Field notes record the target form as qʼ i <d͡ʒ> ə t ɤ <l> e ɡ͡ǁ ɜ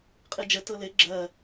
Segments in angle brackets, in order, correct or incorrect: correct, correct

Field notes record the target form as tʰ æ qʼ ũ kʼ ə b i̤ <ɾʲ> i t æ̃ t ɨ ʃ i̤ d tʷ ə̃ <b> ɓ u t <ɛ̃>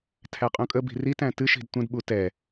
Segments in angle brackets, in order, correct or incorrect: incorrect: r, incorrect: d, incorrect: ɛ

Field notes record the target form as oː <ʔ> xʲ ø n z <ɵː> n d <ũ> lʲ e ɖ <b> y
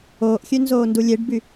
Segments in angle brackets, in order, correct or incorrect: correct, incorrect: oː, incorrect: u, correct

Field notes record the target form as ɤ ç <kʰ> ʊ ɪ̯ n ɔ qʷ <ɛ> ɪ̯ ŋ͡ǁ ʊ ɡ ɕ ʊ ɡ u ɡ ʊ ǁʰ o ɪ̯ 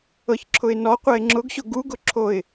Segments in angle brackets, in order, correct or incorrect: incorrect: ǁʰ, correct

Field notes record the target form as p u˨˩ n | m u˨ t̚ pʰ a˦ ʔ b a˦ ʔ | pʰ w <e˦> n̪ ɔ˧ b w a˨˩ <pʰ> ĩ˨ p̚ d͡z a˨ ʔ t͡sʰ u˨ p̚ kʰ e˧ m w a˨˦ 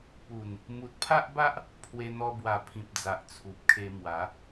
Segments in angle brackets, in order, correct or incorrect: incorrect: e˧, correct

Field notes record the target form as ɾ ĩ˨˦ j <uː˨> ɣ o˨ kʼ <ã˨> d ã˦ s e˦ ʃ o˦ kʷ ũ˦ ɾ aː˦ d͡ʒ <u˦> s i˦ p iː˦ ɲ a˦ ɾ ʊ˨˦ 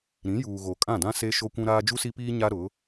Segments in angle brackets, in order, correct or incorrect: correct, incorrect: ã˦˨, correct

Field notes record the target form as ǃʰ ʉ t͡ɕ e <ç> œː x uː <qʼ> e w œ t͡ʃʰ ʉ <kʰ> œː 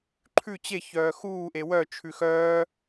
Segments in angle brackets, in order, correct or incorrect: correct, incorrect: ʔ, incorrect: x

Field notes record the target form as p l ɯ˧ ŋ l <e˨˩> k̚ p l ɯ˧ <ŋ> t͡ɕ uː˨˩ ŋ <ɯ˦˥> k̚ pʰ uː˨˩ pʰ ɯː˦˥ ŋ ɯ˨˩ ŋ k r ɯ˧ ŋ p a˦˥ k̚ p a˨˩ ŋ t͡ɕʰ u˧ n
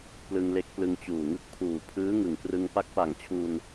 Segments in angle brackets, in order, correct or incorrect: incorrect: e˦˥, correct, correct

